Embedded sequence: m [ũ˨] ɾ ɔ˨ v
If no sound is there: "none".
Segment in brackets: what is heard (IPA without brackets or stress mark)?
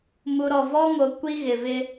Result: u˨